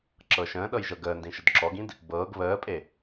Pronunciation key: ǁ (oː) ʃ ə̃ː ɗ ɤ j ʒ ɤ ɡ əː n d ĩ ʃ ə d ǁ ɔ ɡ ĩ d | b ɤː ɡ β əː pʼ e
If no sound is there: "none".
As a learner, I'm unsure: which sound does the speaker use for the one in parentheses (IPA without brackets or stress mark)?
ɤː